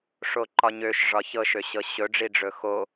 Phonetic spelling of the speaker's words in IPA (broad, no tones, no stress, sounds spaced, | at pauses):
ʂ o ǃ ɒ ɲ ø ʃ ʐ ɒ ç ɤ ʃ ø ɕ ɤ ɕ ɵ ɖ͡ʐ i ɖ͡ʐ ɵ x o